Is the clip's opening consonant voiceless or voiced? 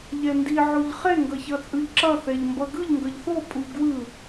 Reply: voiced